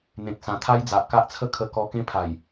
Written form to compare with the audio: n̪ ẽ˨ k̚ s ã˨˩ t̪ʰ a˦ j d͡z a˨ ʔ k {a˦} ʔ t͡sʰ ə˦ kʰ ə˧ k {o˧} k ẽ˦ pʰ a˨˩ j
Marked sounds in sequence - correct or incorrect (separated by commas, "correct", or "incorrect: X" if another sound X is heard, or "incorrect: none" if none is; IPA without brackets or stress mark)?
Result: correct, incorrect: ɔ˧